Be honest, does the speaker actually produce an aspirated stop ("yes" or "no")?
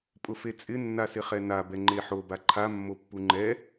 yes